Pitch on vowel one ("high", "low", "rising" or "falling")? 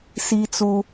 high